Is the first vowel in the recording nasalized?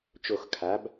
no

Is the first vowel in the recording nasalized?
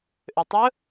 no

